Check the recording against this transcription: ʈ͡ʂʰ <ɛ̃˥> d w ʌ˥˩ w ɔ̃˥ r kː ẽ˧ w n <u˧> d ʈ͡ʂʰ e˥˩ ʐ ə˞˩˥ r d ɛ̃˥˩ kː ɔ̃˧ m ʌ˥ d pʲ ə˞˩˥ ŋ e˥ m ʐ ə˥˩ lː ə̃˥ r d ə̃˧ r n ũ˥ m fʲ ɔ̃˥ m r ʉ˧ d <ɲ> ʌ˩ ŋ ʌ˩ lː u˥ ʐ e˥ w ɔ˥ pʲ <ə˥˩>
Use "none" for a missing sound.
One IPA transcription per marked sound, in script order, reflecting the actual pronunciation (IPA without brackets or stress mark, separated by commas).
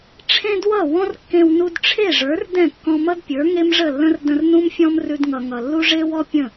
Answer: ẽ˥, u˧, ŋ, ə̃˥˩